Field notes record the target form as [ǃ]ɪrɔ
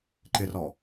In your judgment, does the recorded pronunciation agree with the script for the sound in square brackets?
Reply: yes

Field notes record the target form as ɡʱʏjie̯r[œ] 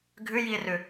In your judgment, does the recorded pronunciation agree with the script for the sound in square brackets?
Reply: no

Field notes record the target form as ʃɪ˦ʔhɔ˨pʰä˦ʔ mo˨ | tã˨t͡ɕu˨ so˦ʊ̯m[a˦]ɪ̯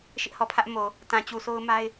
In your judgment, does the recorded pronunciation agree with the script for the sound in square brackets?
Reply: yes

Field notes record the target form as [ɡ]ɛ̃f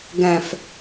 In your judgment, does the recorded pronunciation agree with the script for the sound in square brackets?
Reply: yes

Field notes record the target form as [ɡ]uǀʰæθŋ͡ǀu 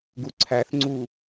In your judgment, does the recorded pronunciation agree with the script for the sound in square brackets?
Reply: yes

